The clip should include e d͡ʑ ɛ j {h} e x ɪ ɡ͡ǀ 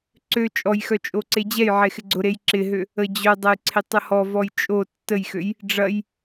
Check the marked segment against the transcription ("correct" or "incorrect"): incorrect